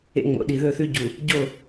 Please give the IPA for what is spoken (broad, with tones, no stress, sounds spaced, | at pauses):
ḛ˦ ŋ͡m o̰˨˦ ɗ i˨ ð ɵ˦˨ θ ʉ˦ ɟ u˨ | ɟ o˦˨